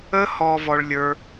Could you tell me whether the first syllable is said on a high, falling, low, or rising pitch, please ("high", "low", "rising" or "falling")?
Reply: high